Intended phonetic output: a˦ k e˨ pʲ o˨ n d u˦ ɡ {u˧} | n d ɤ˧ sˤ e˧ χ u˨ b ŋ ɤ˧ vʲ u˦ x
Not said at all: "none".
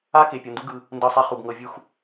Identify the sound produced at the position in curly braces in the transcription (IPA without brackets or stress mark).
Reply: ɯ˧